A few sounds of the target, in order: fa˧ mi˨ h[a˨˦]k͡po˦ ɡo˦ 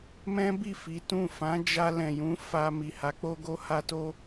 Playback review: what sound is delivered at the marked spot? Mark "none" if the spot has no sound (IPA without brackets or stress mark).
a˨˦